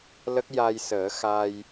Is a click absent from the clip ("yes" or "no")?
yes